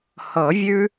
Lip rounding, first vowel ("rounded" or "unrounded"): unrounded